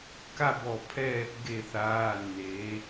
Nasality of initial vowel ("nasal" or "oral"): oral